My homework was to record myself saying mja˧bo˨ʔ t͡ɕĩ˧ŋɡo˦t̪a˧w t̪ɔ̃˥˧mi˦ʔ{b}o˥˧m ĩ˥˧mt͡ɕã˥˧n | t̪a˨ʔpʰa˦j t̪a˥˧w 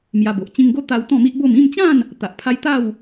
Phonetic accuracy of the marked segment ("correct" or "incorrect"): correct